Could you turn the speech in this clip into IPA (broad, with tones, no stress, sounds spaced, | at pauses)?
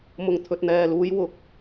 m ʊ˨ ŋ t̪ʰ ɵ˨ t̚ n̪ ɛː˨ l uː˨˧ j w ʊ˨˥ k̚